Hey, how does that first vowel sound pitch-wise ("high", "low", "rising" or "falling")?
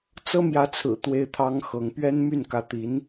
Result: high